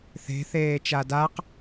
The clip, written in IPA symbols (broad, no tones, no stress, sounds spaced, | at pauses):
θ e̤ θ eː t͡ʃ a d a q